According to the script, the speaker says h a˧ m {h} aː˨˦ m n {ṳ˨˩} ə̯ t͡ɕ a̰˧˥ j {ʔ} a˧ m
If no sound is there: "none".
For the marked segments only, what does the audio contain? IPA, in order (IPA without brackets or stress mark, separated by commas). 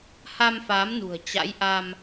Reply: f, ṳ˨˩, ʔ